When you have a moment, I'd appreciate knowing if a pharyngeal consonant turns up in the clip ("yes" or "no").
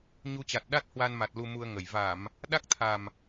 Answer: no